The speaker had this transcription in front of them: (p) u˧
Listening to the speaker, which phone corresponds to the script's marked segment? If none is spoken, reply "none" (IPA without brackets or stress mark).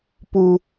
p